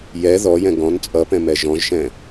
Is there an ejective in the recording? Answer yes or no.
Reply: yes